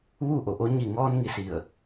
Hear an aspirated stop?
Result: no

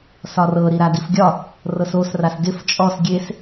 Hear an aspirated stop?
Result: no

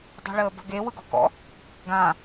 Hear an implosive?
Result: no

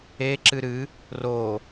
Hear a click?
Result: yes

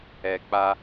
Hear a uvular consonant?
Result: no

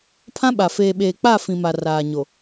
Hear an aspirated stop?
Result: yes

